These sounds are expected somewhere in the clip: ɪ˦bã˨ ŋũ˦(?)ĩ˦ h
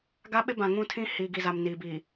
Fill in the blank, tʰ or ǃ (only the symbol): tʰ